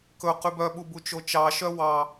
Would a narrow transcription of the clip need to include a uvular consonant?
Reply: yes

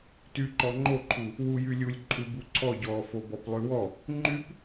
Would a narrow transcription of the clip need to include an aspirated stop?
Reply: yes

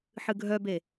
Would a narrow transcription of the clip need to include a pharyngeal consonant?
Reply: yes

